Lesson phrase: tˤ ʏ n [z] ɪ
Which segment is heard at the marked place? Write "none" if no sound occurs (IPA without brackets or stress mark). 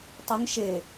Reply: ʃ